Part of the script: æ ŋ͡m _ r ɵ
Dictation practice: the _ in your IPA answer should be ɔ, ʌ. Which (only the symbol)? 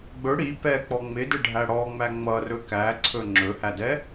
ʌ